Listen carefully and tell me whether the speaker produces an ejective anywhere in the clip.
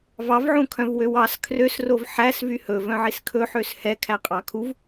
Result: yes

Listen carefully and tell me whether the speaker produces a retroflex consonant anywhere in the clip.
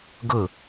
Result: no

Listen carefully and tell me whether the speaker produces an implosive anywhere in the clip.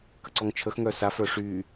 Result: no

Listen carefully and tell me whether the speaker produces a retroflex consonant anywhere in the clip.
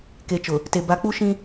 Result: no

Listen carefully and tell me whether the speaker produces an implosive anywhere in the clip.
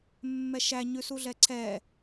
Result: no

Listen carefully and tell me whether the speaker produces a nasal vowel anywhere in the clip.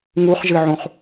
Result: yes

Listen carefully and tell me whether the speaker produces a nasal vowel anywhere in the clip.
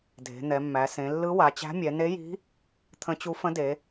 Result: yes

